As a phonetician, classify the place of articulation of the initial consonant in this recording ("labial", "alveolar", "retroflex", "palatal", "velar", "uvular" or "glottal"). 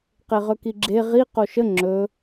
uvular